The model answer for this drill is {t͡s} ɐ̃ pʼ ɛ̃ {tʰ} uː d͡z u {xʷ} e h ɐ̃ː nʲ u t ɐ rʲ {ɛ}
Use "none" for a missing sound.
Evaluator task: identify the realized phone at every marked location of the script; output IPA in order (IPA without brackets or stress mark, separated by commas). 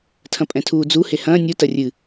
tʰ, tʰ, h, ɨ